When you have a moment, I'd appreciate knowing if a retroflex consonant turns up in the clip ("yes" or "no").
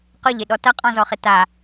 no